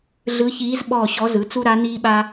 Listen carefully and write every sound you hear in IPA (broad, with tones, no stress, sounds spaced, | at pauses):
ɮ ɯ˧˥ ç iː˧˥ z ɓ ɔː˦˨ ɕ ɔ˧˥ z ɯ˩˥ t͡s u˥ ɾ a˧˥ n iː˥ ɓ a˥